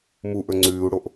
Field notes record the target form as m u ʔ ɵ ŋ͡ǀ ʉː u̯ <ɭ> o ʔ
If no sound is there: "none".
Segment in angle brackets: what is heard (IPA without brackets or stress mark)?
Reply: ɽ